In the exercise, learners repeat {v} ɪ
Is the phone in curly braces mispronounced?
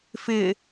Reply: yes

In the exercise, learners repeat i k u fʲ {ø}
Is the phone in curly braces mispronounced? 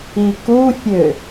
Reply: no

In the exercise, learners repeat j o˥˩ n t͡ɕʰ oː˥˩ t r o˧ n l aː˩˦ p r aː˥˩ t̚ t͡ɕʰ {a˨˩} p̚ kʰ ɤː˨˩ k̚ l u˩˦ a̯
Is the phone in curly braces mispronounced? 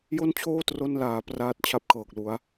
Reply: yes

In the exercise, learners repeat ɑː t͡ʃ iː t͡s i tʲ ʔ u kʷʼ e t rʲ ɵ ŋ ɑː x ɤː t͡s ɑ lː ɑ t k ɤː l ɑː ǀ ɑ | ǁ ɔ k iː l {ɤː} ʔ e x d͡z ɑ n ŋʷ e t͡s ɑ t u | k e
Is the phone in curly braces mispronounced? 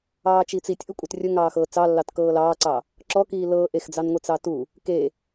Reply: no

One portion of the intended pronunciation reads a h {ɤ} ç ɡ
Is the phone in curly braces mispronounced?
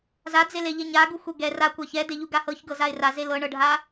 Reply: no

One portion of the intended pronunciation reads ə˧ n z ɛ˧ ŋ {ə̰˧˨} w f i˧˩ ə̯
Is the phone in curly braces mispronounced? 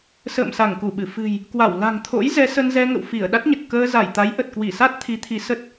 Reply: no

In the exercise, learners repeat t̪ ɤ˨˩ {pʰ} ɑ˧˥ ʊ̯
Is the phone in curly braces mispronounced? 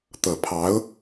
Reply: no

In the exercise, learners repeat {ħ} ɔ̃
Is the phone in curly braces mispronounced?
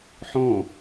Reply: no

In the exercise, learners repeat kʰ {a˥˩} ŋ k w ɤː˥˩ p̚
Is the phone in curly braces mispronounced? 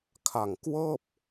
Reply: yes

